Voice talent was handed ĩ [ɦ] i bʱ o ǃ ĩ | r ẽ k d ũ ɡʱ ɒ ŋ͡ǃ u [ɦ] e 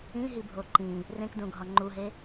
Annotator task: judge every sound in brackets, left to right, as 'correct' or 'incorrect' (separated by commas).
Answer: correct, correct